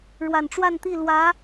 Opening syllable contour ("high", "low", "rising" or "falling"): low